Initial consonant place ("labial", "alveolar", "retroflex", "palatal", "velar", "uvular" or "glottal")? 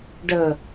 retroflex